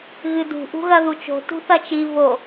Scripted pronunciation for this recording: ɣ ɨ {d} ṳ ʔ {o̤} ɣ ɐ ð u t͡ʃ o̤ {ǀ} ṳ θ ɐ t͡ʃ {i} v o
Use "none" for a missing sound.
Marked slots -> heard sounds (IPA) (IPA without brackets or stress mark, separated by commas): d, ṳ, t, i